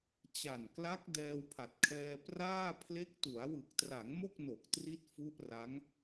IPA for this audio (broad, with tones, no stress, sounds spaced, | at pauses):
t͡ɕ a˨˩ n k l a˦˥ k̚ d ɛː˧ w pʰ a˨˩ t̚ kʰ ɛː˧ p r aː˥˩ pʰ l e˦˥ k̚ t u˩˦ a̯ w ɯ˨˩ k̚ t r a˩˦ ŋ m o˥˩ k̚ n o˨˩ k̚ t r i˦˥ t̚ f u˦˥ ʔ r a˦˥ ŋ